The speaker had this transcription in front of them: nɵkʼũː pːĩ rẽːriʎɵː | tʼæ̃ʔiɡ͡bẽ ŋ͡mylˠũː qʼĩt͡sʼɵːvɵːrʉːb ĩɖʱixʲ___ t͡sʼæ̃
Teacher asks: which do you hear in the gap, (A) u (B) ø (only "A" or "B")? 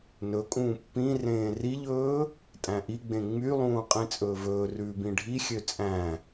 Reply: B